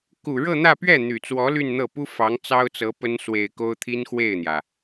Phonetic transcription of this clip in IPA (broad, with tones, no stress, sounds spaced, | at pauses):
k u˨˩ ɻ ɤ˥˧ n̪ ä˥˧ p ɥ ɛ˥˩ n̪ y˨˩ t͡s w ɔ˧˥ l y˥˧ n n̪ ɤ˥˩ p u˥ f ɑ˧˥ ŋ t͡s ɑ˥ ʊ̯ t͡s ɤ˧˥ p ə˥ n s w e˨˩ ɪ̯ k o˥ ʊ̯ t̪ʰ i˥ n x w e˥˩ ɪ̯ n̪ j ä˩